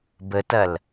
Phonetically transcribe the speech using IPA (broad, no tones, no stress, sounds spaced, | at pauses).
b ə t ɐ l